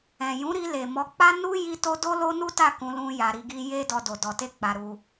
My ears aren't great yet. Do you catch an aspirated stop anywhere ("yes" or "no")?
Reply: no